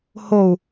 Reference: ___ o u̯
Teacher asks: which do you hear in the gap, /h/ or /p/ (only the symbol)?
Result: h